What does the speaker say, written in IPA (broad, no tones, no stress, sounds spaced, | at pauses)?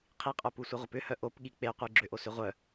qʰ i qʼ œ p u sʷ e ʁʷ ɐ p ʏ h œ ʔ o p ɠ i k͡p e qʷ i ɡ͡ǁ ʏ ʔ o s ʏ ʁʷ œ